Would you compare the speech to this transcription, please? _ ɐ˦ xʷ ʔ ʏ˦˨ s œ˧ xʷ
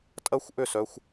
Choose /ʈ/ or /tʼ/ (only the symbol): tʼ